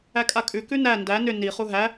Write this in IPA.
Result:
ækʼakʼʉ kʉnæ ndæ nʏ ni χuɦæ

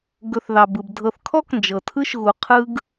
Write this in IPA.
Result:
ɡɵ˨θðɑ˩bɯ˩bdʱɤ˨θ kʰɔ˥knd͡ʒɤ˩ tʰɯ˥ʃɣu˨ qʰɯ˦ɡ

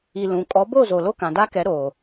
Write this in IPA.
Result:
i˨ lũ˨ kʼɔ˨˦bo˦˨zo˨ lo˦kã˨da˦kɛ˨˦ ɾo˨

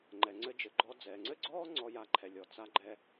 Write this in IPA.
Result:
ŋ͡ǃɛ˩ŋ͡ǀɘ˧d͡ʒɘ˩ɡ͡ǃɔ˧ d͡zɛː˩ŋ͡ǀɘ˥ɡ͡ǀɔː˥ ŋ͡ǀɔ˧ja˧ǃʰɛ˩ lʲɔ˩t͡sa˧ɡ͡ǃɛ˧

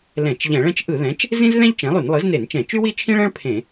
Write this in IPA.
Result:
lɛ̃˧˩˧t͡ʃʎɛ̃˧˩˧ɭɛ̃˥t͡ʃ ʔɯ˧˩˧ðɛ̃˩˥t͡ʃ | zĩ˥zðɛ̃˥ʎ t͡ʃɛ̃˩˥lˠy˧˩˧n lˠɯ˩˥zne˧˩˧nt͡ʃɛ̃˧˩˧ t͡ʃy˥wi˥t͡ʃʰĩ˥ɭɛ̃˥ɭ pʰẽ˧˩˧

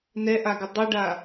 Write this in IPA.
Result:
nɛʔaɡɪ dˤuɖa

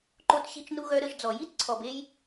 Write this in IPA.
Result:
ǃo˧tɕi˧t͡ʃnu˧ ɣœ˧ɾə˧ʒd͡zɔ˨ ji˦t ǀʰɔ˨be˧j

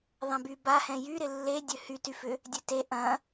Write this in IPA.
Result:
ðˤɛ̃bybahɛ̃ jyɾɪ lːe dʲøhytyfʏ | dʲøte ʔɐ̃

